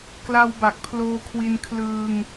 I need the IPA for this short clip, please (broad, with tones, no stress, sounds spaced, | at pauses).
k l a˧ w b a˨˩ k̚ pʰ l oː˧ kʰ w i˧ n kʰ l ɯː˧ ŋ